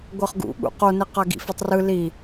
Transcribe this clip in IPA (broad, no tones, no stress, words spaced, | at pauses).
ɡʷɤχɡṵ ɠṵqone qaɡḭfɛtˤrɯ li